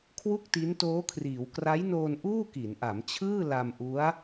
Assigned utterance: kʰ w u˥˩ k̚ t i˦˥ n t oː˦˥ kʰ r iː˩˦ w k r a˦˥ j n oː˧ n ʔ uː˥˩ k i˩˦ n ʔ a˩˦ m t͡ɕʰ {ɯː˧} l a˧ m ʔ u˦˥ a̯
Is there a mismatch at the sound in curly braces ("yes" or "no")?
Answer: yes